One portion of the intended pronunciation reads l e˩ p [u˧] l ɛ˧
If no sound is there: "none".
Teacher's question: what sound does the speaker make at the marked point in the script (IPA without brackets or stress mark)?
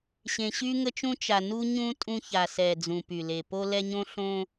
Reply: o˧